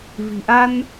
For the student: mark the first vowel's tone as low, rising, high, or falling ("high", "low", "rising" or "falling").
low